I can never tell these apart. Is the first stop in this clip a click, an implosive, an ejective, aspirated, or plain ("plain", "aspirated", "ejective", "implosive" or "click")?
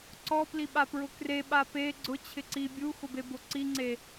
click